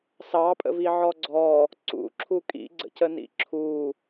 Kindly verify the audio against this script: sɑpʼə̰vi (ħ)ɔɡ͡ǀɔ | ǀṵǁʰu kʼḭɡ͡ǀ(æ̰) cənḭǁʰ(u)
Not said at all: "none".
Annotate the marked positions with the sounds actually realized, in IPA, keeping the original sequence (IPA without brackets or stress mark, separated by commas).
ʕ, ə̰, u